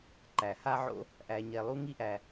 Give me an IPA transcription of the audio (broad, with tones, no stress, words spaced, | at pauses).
ǃæ˩ha˥ʕo̰˥ | ʔæ˨ɲɛ˨lˠu˥ ŋi˥ʔæ˨